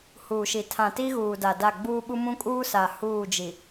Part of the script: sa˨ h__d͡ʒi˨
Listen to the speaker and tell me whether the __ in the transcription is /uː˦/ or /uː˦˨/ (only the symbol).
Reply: uː˦˨